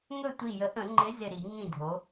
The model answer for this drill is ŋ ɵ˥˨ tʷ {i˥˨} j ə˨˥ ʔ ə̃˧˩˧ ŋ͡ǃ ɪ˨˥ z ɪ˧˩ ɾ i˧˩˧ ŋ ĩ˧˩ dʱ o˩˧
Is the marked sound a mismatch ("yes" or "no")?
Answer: yes